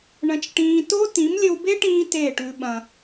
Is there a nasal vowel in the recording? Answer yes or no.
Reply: yes